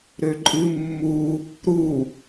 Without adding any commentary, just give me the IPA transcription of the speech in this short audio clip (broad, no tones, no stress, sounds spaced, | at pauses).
ɾ ø ǃʼ ɨ mː u | ɾ u